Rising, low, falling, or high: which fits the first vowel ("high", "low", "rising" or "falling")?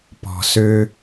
low